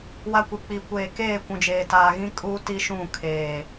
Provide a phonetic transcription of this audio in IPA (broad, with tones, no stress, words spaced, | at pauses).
wa˦kʷi˨ k͡pi˨ kʷeː˨keː˦˨ kʷũ˨d͡ʒeː˨taː˨ɣĩ˦ kʼu˦ ti˦ʃũ˦˨ kʰeː˨